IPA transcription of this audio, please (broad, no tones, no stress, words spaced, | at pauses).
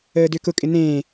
əːdʏːkʊkʼɪ nẽː